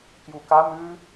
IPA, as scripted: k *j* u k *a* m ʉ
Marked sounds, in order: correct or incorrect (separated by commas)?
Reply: correct, correct